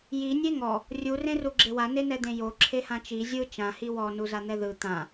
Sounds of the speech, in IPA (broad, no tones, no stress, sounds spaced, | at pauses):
j i nʲ e ŋ ɔ | rʲ u r ẽ r u ɡ͡ǁ e w a n e n ɛ d̪ ẽ j o ǁʰ e h ã t͡ʃ i zʲ ɯ t͡ʃ ã h i w ɔ n u z a n̪ ɛ ð ɯ t̪ ã